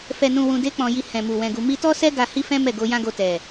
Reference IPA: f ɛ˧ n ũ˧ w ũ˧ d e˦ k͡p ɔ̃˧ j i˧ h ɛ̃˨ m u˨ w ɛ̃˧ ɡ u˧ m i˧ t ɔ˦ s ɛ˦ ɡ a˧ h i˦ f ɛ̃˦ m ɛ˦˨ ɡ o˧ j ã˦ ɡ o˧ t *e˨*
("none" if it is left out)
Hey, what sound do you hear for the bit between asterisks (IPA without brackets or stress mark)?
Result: ɛ˨